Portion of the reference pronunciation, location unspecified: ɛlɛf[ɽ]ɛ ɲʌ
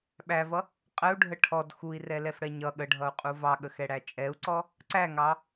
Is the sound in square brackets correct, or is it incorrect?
correct